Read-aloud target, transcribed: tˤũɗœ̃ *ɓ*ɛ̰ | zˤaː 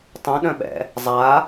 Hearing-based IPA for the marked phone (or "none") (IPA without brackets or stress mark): ɓ